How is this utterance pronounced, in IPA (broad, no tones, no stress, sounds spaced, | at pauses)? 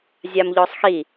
zʲ a m ʎ ɔ sˤ x i